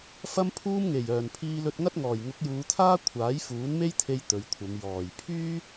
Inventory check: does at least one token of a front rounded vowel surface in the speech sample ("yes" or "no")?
yes